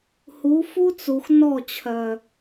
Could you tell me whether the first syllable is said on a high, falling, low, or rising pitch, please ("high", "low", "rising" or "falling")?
rising